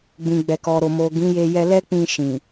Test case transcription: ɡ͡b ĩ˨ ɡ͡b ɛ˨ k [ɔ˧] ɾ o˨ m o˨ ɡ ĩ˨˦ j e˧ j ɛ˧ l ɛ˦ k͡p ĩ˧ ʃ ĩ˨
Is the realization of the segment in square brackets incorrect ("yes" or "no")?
yes